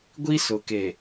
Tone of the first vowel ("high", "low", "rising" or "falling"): high